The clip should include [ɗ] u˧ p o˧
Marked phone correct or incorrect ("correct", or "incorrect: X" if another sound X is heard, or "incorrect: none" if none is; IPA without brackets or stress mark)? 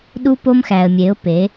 correct